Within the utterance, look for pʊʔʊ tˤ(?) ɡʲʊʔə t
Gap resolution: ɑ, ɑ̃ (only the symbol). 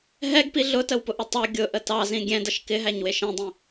ɑ